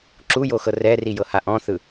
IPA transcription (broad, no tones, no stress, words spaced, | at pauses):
ǁujoxɤ rɛrijɤha ʔɔ̃θɯ